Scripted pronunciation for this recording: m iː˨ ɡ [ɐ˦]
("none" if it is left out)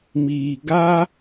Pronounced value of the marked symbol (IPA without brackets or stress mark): a˦